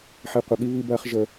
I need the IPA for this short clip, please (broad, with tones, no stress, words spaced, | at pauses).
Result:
ħi˨qʷʌ˨ɠi˦ βi˦bɐː˦χ ʒə˦